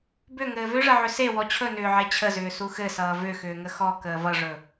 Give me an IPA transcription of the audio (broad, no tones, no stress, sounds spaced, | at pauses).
b ʏ ŋ ɘː v ʏ ʐ ə ʕ ʏ s e w ɔ t͡ɕʰ ɵ n ʏː ʕ e t͡ɕʰ ə z ʏː s u x ɘ s ʌː v ʏ x ʏː ŋ ə x ɔ k əː v ʌ ʐ ɵ